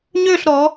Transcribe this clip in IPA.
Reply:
ɲ ø˦˨ ɬ ɾ ɔ˩˧

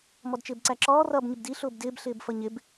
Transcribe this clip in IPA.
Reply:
m ɔ d t͡ʃ ɪː b ǀ æ ǁ ɔː r ʌː b ɲ ɪ b d i ɬ ʊː b d ɪː b ɬ ɪː b f ʌ ɲ ɪ b

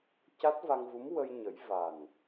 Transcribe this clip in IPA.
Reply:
c a˦˥ t̚ v a˧ ŋ v u˧˥ m w ə˧ j ɲ ə˨˩˦ j v a˨˩ n

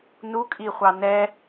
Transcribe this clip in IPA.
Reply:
n u kʼ i χʷ ɑ n ɛ

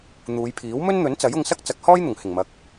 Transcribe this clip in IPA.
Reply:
n̪ uː˨˧ j pʰ iː˨˥ w m ɵ˥ n n̪ ɵ˨˥ n t͡s ɐ˨˥ j ʊ˧ ŋ s ɐ˥ k̚ t͡s ɐ˨˥ k̚ h ɔː˥ j n̪ ʊ˨˩ ŋ h ɪ˨˩ ŋ m ɐ˨ k̚

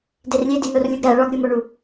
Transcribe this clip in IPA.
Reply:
d e r lʲ e d i n o r lʲ u ɡ ɾ æ ɭ ɒ ɡ ɾʲ u m o ɳ u

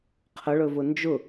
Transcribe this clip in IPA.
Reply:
qʰ ə ɭ ɵ v ʊ n d͡ʒ ʊ

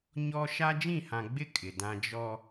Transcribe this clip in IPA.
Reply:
ɲ ɔ˦ ʃ a˦ d͡ʒ ĩ˦˨ h ã˨ ɡ͡b ɪ˦ kʼ ɪ˨ d ã˦ d͡ʒ ɔ˦

